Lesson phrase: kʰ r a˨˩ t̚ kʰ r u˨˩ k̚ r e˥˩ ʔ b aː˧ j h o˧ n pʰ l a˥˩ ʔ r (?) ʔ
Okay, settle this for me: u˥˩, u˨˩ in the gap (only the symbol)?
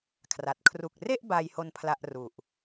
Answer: u˨˩